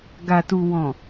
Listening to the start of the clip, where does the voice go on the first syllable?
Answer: low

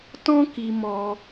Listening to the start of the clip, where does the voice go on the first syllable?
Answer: high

